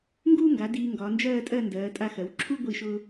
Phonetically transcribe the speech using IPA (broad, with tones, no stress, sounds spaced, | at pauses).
ŋ ɡ uː˥ ŋ ɡ a˩˧ d iː˧ ŋ ɡ ɒː˩˧ n d͡ʒ ɜː˥˧ tʼ ɜ˥˧ n d ɜː˩˧ tʼ a˧ x ɜ˩˧ w ǁʰ u˥ ɡʷ i˧˩ ʃ ʊː˧